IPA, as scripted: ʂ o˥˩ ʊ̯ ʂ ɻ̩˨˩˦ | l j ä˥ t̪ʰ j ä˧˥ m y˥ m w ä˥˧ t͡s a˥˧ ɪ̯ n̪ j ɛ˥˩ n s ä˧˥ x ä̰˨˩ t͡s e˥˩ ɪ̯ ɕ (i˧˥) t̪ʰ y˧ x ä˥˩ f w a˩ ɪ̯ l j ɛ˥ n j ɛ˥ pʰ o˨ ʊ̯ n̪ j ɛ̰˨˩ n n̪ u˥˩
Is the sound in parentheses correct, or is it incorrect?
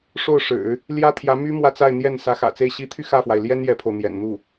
correct